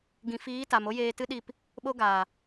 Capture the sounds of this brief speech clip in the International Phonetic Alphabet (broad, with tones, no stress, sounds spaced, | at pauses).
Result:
ɡ ĩ˨ f iː˨˦ t a˨ m o˦ j eː˧ t ɨ˦ ɗ i˦˨ p | ɓ o˧ ɡ aː˨